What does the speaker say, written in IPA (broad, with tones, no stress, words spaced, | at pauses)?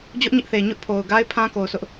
d͡ʑʊ˦ʔɲɪ˦ʔθe˨ ɲʊ˦ʔpʰo˨ʊ̯ɡa˦ɪ̯ pʰã˦ko˨ʊ̯sʰʊ˦ʔ